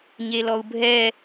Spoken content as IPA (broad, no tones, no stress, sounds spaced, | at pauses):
ɲ e l ɔ u̯ bʱ ɛ